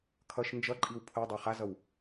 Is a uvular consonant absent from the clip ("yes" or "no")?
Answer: no